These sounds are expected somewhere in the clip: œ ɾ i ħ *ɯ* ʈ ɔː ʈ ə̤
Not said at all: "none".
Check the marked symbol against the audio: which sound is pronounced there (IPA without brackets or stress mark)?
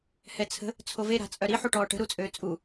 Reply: u